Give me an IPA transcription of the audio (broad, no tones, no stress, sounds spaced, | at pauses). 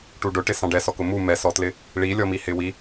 ʈ u ɖ ʊ ʈ ɪ s ɑ̃ ɖ ɛ s ɔ k ʊ m u m ɛ s ɔ t l ɪ | ɭ i lʲ ɔ m i h ɪ w i